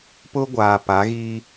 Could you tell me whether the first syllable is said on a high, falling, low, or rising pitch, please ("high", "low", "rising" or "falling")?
high